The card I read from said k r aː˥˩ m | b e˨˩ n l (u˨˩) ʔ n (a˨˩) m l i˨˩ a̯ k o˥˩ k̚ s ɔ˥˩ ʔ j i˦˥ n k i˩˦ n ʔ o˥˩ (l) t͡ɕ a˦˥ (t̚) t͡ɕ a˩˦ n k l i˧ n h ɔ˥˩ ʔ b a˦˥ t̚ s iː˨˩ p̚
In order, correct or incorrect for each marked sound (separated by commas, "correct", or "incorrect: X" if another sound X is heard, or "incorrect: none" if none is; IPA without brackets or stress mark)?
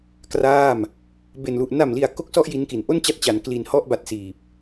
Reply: correct, correct, incorrect: n, correct